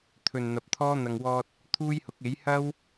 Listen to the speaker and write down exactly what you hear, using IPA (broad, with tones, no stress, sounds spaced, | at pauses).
t̪ʰ ɵ˨ n n̪ ɐ˨ p̚ t̪ʰ ɔː˥ n̪ ɐ˨ ŋ w ɔː˧ t̚ | t̪ʰ uː˥ j h ʊ˨˥ k̚ e˨˥ j h ɐ˥ w